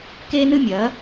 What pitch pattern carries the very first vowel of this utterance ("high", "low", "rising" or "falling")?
high